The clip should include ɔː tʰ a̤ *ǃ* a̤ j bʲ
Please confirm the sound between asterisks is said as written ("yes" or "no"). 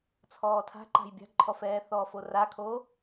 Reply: yes